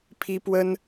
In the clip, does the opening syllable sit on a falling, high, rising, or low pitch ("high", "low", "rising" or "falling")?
high